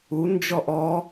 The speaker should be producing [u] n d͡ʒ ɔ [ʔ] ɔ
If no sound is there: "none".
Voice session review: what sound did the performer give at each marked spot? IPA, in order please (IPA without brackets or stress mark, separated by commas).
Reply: u, ʔ